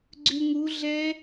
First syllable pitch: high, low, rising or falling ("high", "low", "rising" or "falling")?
low